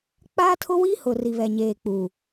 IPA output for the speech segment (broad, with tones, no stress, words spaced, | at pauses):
k͡paː˦tʰʊ˦wiː˦hʊ˨ ri˨βɛ˨ɲeː˨k͡puː˨